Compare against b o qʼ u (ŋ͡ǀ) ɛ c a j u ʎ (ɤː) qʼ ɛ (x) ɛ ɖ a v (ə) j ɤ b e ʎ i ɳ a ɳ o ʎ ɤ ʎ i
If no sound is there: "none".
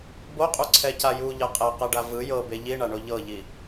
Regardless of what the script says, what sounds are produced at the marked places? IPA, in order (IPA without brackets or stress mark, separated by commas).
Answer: ǀʰ, ɤ, q, ɯ